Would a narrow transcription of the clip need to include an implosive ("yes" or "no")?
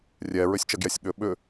yes